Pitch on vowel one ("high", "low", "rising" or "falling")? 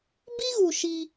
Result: high